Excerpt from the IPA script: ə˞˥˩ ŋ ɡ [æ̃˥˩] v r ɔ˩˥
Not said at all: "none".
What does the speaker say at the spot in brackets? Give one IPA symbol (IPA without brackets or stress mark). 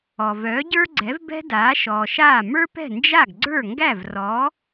æ˥˩